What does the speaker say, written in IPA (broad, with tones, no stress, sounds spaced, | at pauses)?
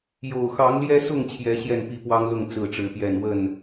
j o˨˩ ʊ̯ x ɑ˨˦ ŋ l j ɛ˦ s ʊ˥˨ ŋ t͡ɕʰ j ɛ˨˦ ɕ j ɛ˥˨ n p i˥˨ p w ɑ˦ ŋ l ʊ˥˨ ŋ t͡s ɹ̩˥˨ ʈ͡ʂ ɻ̩˨˦ p j ɛ˥˨ n w ə˥˨ n